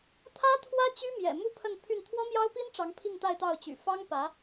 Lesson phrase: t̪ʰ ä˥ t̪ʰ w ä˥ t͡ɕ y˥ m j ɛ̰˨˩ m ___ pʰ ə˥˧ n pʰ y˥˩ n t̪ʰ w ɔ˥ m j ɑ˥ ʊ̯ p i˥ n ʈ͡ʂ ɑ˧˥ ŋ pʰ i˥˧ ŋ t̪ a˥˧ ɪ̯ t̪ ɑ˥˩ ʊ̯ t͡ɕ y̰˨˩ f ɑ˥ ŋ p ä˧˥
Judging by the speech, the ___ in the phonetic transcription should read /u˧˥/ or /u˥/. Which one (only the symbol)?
u˥